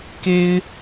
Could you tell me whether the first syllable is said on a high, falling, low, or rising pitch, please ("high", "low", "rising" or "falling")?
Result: high